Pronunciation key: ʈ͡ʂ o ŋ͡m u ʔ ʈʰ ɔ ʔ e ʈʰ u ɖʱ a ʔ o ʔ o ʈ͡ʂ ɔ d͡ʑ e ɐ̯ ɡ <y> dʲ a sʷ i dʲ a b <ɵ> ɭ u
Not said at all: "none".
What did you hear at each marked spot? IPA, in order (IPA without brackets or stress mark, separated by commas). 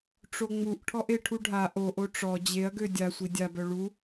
ø, œ